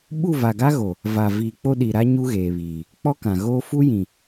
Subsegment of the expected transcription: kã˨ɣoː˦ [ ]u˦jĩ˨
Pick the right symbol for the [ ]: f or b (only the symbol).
f